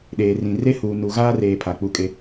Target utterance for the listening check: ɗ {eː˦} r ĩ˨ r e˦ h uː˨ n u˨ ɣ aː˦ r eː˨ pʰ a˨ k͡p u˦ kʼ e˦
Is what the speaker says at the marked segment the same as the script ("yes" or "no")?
no